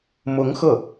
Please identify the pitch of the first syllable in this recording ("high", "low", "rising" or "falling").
rising